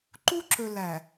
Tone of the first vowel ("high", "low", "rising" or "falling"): high